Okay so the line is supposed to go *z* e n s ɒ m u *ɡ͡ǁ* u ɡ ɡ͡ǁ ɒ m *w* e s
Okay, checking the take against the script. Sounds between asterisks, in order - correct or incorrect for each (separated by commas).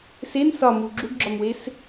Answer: incorrect, correct, correct